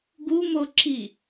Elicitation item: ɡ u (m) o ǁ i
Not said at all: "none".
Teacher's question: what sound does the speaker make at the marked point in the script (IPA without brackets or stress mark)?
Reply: m